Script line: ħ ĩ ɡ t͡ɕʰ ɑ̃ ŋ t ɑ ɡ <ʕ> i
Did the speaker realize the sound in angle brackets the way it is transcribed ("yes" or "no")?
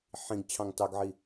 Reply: yes